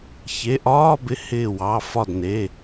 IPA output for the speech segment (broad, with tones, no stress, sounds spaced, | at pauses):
ç e˩˧˩ ʔ ɒː˧˥˧ b ɪ˨˦ h ɪː˧˩ w ɑ˩˧˩ f ɒ˧˩ d n e˩˧˩